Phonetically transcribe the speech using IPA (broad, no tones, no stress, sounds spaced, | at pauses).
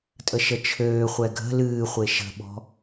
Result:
tʼ ə ʃ ə t͡ʃʰ øː χʷ ɛ ɡʱ ə̤ l ɨː χʷ e ʃ ə̤ ɓ ɔ̤